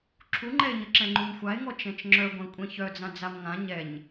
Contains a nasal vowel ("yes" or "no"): yes